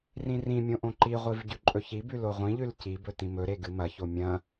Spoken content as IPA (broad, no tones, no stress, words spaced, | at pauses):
rĩrĩmʲõ ʔõǃiʁʷiv ɟʉǃʼɵçibʉ loʁʷĩʎʉl cibɵ tĩmɵɾe ɡɨmɐço mʲɐ̃